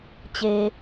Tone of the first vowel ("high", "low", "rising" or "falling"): low